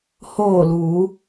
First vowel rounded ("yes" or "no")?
yes